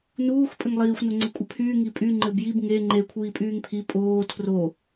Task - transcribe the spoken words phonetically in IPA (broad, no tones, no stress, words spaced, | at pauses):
nuːx pʼɘŋlˠiːxʷ noŋ͡ǀɘkʷʼɘpʰyː ŋipʼy ŋ͡ǃɘbjib ŋe ŋ͡ǃe kʷʰiːpʼyːŋpʰi pʼoː tʰro